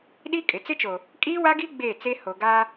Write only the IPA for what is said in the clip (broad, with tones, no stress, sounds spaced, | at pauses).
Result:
ɗ i˦ kʼ ɪ˨ t͡s ɪ˦ t͡ʃ o˨ | kʼ iː˦ w a˦ ɡ i˦ ɡ͡b eː˦˨ t͡s e˦ h o˨ ɡ aː˦